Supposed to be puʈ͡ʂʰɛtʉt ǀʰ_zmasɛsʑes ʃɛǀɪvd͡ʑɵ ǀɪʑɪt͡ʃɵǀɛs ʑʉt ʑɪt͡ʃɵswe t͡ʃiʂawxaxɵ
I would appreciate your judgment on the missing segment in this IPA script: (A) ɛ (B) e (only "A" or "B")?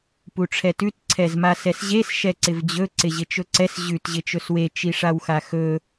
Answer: A